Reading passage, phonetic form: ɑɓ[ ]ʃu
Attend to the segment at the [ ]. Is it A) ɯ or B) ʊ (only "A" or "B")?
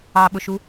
B